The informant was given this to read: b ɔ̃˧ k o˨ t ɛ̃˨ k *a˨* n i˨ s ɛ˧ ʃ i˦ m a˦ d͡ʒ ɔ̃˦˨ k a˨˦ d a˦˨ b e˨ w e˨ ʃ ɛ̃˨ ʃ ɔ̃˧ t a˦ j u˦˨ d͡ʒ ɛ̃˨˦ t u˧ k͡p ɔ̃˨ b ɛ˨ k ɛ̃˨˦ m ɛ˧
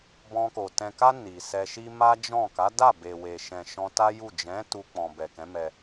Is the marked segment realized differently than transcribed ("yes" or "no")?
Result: yes